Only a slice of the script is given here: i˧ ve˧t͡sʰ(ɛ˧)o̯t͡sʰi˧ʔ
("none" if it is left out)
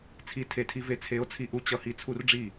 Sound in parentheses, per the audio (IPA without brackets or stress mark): e˧